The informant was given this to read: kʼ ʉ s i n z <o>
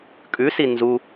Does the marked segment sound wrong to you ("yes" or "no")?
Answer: yes